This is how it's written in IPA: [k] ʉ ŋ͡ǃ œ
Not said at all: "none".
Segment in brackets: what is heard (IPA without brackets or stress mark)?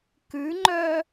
k